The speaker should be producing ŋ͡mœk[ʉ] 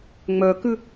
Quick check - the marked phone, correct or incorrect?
correct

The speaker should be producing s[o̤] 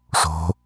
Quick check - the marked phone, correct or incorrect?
correct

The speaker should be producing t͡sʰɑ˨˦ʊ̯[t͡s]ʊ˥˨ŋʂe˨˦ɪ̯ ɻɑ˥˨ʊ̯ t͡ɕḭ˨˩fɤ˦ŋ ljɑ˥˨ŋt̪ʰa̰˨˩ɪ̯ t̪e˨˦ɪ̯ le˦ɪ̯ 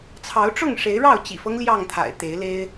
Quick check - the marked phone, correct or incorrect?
incorrect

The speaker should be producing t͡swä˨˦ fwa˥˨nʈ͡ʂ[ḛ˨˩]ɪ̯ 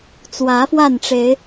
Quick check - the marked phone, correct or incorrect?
incorrect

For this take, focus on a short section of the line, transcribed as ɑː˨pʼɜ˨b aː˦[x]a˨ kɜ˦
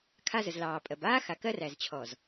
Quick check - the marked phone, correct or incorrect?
correct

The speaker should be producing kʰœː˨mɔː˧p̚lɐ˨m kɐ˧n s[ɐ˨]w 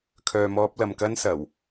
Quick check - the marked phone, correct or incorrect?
incorrect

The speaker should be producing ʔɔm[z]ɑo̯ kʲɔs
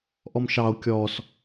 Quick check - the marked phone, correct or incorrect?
incorrect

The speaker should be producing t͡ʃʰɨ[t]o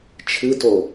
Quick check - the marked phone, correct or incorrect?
correct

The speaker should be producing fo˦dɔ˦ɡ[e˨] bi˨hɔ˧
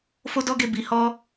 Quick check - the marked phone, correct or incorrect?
incorrect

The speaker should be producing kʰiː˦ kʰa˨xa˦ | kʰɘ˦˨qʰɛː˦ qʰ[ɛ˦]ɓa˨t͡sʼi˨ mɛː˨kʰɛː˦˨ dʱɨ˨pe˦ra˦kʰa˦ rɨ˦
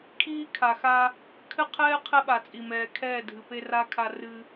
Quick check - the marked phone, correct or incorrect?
correct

